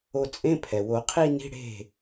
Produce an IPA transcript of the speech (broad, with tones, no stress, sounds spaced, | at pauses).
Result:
o˧ t͡sʼ ẽ˧˥˧ pʰ ɛ˩ w o˨˩˦ qʰ i˥˧ n i̤˧˥˧ ɽ e̤˥˩